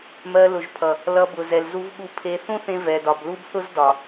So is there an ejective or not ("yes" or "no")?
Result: no